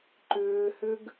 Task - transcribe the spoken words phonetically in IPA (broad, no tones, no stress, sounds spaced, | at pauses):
ǃ ʏː h ʏ ɡ